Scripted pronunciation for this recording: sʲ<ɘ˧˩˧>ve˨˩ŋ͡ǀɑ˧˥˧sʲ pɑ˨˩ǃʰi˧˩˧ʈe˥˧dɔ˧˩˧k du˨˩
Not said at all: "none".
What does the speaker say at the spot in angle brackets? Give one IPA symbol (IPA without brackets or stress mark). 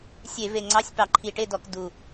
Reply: e˧˩˧